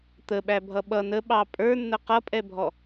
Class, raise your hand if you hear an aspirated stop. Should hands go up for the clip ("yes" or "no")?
no